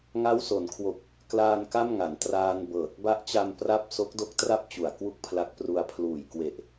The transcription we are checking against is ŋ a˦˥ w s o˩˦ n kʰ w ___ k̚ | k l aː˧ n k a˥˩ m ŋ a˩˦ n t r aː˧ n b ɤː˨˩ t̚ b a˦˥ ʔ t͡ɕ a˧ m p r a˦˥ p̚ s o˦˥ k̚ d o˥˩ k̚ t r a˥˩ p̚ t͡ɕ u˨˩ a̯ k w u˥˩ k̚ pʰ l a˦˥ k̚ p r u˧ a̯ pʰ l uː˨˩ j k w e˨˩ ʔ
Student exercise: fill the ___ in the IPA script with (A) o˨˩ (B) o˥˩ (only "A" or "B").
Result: A